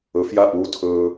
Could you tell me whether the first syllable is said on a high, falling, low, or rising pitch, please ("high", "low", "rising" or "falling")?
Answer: rising